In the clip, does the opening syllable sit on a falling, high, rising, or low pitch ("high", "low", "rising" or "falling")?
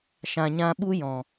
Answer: low